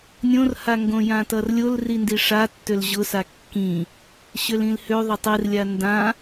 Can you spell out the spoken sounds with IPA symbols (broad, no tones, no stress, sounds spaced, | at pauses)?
nʲ õ r h a ŋ ɡ õ j ã t ʌ r lʲ o l r i n d i ʂ a tː ø l ʑ ʊ s a kː ĩ | ɕ ø l ĩ l h ø ðˤ ʊ tˤ i r lʲ a n d ã